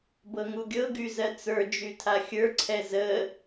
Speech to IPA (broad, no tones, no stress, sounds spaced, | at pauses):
b ɤ ŋ u ɡʲ ɤ ɡ y z ɜ t͡s ə˞ d͡ʒ y tʰ a xʲ ə˞ ǀʰ ɛ z ə